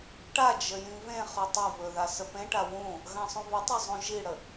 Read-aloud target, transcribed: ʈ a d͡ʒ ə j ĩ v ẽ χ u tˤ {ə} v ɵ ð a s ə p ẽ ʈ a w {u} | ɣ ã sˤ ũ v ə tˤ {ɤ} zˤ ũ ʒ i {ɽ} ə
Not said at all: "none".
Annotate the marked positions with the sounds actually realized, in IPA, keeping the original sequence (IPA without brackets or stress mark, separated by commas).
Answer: ɛ, ũ, ɵ, ɽ